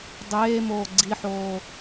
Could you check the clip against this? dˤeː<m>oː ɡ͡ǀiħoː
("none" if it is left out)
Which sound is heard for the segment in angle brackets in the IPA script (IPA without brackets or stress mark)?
m